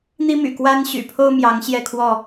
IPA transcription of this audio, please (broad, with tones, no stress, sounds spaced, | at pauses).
n̪ i˦ m y̰˨˩ k w a˦ n ɕ y̰˨˩ pʰ o˦ ʊ̯ m j ɑ˨˦ ŋ ɕ j ɛ˥˨ kʰ w ɔ˥˨